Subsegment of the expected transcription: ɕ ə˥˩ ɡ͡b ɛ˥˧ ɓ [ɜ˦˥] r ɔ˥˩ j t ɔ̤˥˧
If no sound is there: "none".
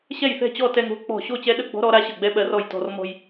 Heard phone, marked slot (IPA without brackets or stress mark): ɜ˦˥